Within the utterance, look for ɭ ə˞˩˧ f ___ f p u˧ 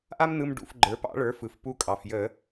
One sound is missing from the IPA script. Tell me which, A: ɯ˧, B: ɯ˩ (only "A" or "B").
B